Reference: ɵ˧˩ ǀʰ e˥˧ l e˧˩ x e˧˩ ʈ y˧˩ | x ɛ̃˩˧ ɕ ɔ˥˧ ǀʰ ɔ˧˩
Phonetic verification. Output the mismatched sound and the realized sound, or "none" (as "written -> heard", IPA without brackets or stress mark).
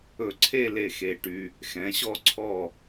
y˧˩ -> y˧